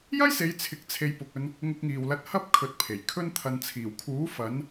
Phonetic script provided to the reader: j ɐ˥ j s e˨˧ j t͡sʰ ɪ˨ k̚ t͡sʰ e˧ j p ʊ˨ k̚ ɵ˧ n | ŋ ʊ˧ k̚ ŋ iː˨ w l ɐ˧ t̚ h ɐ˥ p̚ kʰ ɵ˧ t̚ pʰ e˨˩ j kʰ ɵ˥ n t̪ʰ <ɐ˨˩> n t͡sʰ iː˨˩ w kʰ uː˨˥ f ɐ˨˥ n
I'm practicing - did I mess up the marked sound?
yes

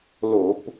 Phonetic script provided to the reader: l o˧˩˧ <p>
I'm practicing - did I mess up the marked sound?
no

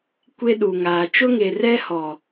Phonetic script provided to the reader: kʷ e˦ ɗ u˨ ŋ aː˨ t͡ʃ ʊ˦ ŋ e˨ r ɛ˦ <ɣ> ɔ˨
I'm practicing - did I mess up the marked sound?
yes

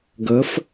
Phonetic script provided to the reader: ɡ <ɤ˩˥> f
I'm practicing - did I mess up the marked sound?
no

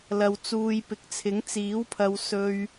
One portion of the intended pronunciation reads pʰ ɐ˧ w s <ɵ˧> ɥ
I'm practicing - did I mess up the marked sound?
no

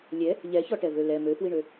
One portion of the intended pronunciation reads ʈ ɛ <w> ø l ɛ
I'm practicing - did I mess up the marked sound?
yes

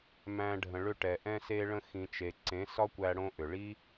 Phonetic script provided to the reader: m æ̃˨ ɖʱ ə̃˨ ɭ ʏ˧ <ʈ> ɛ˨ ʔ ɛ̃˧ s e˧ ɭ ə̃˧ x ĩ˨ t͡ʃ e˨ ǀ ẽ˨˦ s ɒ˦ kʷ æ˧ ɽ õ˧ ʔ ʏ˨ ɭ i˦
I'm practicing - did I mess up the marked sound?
no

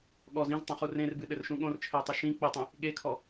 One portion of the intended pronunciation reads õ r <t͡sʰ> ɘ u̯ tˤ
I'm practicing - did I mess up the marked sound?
yes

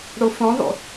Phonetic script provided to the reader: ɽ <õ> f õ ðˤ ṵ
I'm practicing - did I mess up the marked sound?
yes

